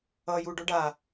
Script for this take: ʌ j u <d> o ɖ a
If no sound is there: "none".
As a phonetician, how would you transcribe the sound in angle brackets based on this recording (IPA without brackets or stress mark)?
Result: ɖ